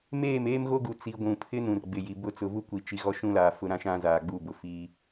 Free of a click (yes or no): yes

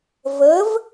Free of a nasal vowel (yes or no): yes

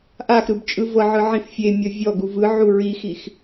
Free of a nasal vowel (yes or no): no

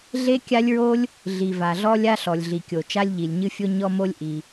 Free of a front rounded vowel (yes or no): yes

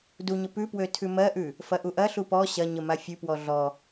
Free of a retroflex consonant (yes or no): yes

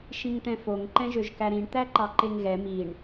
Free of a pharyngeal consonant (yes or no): yes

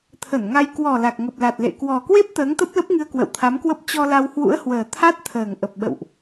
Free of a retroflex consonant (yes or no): yes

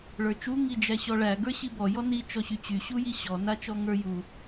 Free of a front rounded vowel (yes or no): no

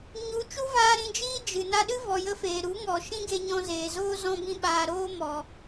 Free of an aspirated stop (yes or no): yes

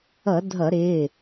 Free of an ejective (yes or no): yes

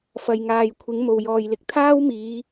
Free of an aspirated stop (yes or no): no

